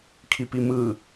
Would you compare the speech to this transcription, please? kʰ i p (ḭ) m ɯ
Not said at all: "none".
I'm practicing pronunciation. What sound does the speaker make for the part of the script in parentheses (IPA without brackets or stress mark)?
i